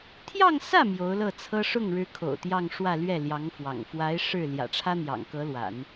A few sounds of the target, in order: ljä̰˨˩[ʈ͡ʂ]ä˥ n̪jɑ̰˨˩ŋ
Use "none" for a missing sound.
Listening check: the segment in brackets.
ʈ͡ʂʰ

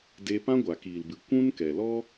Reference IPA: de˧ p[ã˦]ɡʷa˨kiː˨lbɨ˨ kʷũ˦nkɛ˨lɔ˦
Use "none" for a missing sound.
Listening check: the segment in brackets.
ã˦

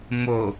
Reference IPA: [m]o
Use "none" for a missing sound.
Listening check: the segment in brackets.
m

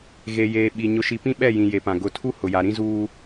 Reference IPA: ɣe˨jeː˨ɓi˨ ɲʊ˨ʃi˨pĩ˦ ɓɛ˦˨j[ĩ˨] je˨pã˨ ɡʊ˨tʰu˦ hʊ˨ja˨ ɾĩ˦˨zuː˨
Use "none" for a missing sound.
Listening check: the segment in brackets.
ĩ˨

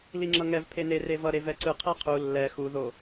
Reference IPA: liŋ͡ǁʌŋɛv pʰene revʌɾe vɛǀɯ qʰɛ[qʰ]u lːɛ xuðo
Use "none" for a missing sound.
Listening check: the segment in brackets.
qʰ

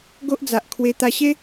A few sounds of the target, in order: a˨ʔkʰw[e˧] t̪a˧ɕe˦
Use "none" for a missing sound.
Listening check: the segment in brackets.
e˧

